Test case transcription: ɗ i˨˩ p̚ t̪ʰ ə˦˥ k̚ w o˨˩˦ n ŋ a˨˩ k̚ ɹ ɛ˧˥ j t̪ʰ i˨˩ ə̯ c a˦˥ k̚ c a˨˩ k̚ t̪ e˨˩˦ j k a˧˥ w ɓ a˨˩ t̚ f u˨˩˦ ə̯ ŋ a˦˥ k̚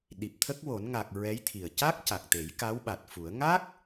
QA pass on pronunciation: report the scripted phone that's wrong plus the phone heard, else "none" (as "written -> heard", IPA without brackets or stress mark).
none